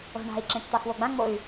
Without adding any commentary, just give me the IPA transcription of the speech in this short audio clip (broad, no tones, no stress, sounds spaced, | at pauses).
o̤ ɳ a̤ i̯ ǁ ẽ t t̪ ɑ x w o ɡ͡b ã ŋ͡m o y̯